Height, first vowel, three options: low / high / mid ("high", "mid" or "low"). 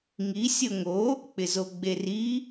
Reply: high